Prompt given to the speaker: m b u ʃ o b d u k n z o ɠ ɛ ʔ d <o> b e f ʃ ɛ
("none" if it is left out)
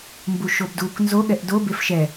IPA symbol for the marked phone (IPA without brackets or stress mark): o